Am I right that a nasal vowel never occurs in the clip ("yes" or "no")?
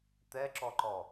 yes